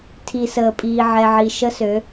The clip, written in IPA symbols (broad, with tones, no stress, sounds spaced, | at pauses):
tʰ i˨ s əː˨ pʼ iː˨ ʕ ɛ˨ ʕ i˨ ʃ ə˦ s ø˨˦